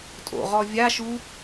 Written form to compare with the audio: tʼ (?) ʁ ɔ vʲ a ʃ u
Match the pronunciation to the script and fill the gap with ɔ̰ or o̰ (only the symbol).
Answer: o̰